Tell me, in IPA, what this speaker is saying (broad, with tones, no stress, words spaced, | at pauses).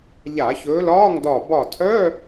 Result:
ʎa˧˩˧çɵː˨˦lɒː˧˥˧ŋdɒ˧˩ bɒ˧˩tʰœ˧˥˧